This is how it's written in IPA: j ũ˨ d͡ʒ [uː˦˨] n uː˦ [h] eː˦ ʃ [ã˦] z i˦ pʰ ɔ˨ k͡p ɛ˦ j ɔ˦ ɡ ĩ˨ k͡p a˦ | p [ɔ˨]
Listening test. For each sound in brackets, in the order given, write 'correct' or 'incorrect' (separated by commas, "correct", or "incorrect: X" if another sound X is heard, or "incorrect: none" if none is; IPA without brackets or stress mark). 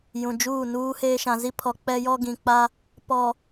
correct, correct, incorrect: ã˨, correct